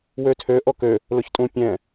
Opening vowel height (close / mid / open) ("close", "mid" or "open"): mid